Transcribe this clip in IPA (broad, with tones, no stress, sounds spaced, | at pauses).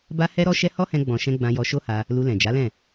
b a˦ h ɛ˦ ɾ ɔ˦ ʃ ɛ˦ h ɔ˦ h ɛ̃˧ ɡ͡b ɔ̃˨ ʃ ɛ̃˧ ɡ͡b ã˧ j ɔ˧ ʃ o˦ h a˧ | l u˧ l ɛ̃˨ d͡ʒ a˨˦ l ɛ̃˦˨